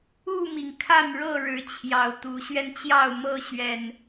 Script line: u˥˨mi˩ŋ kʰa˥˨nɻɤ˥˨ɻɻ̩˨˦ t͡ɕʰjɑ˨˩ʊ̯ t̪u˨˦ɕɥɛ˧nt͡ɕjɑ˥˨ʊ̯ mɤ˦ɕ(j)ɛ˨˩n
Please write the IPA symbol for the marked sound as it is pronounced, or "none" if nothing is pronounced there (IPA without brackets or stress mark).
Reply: ɥ